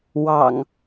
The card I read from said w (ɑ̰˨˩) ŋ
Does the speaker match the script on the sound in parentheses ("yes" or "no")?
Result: yes